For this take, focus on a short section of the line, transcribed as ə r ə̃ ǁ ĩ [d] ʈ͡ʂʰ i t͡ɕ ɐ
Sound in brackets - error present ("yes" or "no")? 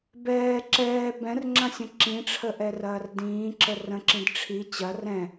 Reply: no